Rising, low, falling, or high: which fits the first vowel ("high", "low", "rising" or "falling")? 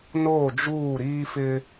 falling